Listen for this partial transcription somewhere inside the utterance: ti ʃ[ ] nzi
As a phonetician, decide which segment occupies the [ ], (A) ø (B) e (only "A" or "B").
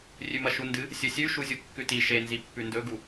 B